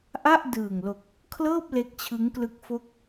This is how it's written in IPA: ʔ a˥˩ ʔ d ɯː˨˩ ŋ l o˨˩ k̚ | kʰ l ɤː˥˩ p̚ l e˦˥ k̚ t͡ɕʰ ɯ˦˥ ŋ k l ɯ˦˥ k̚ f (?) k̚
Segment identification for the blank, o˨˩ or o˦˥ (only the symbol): o˦˥